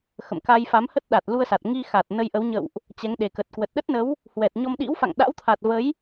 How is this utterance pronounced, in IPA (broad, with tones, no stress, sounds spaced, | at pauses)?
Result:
x ə̰˧˨ m k a˧ j f a˨˦ m h ə˦˥ t̚ ɗ a˨˩ t̚ l u˧ ə̯ s a˨˩ t̚ ŋ i˧ x a˨˩ t̚ n ə˧ j ʔ ə˨˦ w ɲ ə̰˧˨ w ʔ | t͡ɕ ɛ˨˦ ŋ ɗ e˨˩ k ə˨˩ t̚ k w ə˨˩ t̚ ɗ ə˦˥ t̚ n ə˨˦ w | h w ɛ˨˩ t̚ ɲ ɔ˧ m ɗ ḭ˧˥ w f a̰˧˨ ŋ ɗ a̰˧˥ w t̪ʰ a˨˩ t̚ v ə˨˦ j